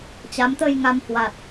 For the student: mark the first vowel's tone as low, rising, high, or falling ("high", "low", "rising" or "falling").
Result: rising